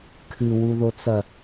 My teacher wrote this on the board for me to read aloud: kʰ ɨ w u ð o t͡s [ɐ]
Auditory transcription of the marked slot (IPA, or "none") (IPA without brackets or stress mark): ɐ